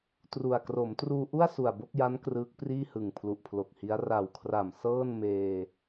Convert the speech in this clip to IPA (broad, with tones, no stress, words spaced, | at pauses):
tru˨˩a̯ kro˩˦mtruː˧ʔu˥˩a̯ su˨˩a̯bo˥˩k̚ja˦˥n krɯː˦˥k̚priː˥˩hɯ˨˩ŋ pʰlu˨˩ʔpʰlo˨˩k̚hi˦˥a̯ ra˨˩wkʰra˨˩m sɤː˥˩nmeː˧